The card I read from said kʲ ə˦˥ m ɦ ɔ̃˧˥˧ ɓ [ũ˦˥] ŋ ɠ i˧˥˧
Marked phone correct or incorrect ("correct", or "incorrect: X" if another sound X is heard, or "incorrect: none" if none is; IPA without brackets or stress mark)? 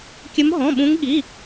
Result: correct